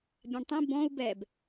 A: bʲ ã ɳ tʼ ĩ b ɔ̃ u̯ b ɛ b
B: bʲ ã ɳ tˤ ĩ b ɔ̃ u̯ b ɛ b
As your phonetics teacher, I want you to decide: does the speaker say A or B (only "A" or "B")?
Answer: B